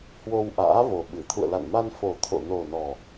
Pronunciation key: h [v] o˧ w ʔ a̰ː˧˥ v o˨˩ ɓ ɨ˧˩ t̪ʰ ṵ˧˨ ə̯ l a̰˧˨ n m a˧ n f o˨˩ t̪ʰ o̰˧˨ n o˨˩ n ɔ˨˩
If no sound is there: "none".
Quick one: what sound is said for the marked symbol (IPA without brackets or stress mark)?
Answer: w